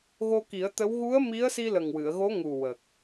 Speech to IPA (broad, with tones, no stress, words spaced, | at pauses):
ɣo˧ki˨˩˦ə̯t̪ə˧˥w ɣu˧˥ə̯mi˧˥ə̯si˧ lə˨˩ŋwɨ˨˩˨ə̯ɣo˧˥ŋu˨˩ wə˨˩k̚